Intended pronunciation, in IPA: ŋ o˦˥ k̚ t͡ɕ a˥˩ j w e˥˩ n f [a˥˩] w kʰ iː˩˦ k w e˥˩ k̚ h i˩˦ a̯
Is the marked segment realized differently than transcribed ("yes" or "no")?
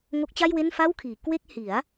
no